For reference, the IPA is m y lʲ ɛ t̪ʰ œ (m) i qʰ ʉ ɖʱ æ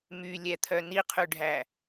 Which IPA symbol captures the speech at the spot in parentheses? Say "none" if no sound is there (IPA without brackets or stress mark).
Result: n